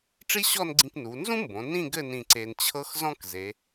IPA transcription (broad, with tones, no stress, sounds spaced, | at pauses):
ʈ͡ʂ i˥ ɕ ɔ˥˧ n ɡ͡ǀ ĩ˧ k n u˩˧ n z ũ˥ m b õ˩˧ n ĩ˥˧ ɡ ɘ˥˧ n ĩ˧ ǀ e˧ n t͡ɕʰ ɤ˥ x z ɔ̃˥ k z e˩˧